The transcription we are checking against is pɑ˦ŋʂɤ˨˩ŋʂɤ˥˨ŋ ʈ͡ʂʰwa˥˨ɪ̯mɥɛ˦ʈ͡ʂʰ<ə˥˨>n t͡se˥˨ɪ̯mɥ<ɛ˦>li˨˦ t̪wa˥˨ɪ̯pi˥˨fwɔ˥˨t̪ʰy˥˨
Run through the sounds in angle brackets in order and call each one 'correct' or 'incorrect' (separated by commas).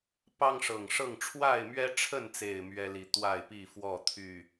correct, correct